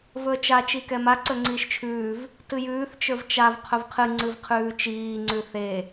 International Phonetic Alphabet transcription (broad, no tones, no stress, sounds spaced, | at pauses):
v ɵ ə̯ t͡ʃ a t͡ʃ i k ɛ m a ǀ ɵ ŋ͡ǀ iː ʃ t͡ʃʰ ʉː v | t ɨ j ʉː θ t͡ʃ ə˞ v t͡ʃ a v qʰ ɵ v qʰ ɨ ŋ͡ǀ ɨ v qʰ ʉː t͡ʃ iː ŋ͡ǀ ʉ θ e